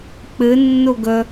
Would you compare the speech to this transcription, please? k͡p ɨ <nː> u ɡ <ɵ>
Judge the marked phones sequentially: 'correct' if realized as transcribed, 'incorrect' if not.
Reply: correct, correct

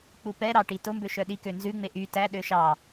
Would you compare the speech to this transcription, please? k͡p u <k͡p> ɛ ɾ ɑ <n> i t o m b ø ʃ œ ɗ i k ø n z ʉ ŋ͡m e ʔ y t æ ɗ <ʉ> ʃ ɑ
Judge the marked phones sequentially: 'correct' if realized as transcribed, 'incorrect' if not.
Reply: incorrect, incorrect, incorrect

